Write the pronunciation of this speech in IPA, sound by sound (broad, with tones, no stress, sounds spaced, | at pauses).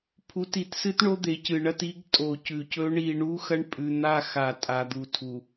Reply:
pʰ u˨˦ t i˨ t s ɨ˦ t ɳ o˦ d̪ e˨ c ɨ˨ ɳ ɐ˦ t i˦ ɡ tʼ o˨ c ʉ˨ c ɵ˦ ɳ i˦˨ ɳ u˦ x ɐ˦ ɳ pʼ ʉ˨ n̪ a˦˨ x a˨ tʼ a˨ d̪ u˨ tʰ u˨